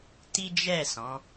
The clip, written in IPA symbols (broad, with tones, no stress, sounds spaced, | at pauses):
t i˦ d͡ʒ ɛ˦˨ s ɔ̃˨˦